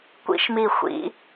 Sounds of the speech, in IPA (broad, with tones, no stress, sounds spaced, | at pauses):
kʷ ḭ˥ ʃ m i˧˩ xʷ ḭ˨˦